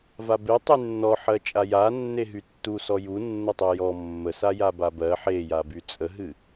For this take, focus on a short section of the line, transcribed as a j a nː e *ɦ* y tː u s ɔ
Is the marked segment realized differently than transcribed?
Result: no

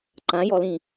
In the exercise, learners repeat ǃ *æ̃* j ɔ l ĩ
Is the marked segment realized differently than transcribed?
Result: yes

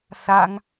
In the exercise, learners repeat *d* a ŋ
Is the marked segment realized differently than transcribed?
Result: yes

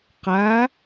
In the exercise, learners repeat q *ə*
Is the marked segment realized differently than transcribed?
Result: yes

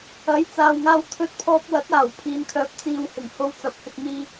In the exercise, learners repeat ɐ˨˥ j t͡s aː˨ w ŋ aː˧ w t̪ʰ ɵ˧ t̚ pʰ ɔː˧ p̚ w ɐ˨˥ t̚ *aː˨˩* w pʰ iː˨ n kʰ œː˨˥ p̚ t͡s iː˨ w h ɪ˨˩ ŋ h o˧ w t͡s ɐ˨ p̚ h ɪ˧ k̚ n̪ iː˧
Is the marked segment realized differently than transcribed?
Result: no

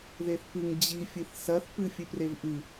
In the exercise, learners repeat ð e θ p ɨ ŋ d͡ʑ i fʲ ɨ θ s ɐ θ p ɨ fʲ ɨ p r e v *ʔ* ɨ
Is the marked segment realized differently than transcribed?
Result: no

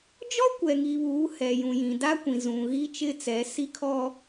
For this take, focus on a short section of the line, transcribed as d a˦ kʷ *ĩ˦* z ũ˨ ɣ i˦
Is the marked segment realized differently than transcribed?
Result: yes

